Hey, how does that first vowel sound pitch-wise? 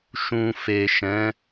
low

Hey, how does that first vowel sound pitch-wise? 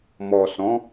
low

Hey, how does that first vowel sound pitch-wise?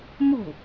falling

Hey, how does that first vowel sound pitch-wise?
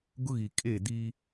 high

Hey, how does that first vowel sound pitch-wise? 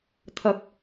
rising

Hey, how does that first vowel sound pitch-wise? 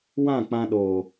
falling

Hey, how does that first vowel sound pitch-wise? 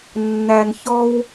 low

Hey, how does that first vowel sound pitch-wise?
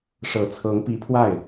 low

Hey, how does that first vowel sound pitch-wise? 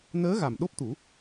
rising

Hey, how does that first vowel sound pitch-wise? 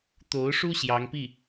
rising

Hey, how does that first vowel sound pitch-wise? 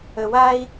low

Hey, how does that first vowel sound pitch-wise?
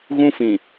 high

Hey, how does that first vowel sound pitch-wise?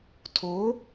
rising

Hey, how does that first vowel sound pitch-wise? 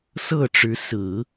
falling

